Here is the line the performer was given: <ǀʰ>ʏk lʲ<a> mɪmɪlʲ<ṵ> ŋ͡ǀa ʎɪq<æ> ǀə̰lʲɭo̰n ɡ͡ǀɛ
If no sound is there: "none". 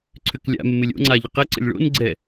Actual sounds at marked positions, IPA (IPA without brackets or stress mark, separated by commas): ǀʰ, a̰, o̰, ɛ